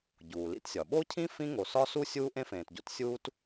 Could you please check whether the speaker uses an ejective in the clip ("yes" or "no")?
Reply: no